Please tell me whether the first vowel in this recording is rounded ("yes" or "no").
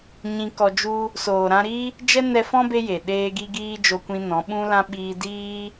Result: no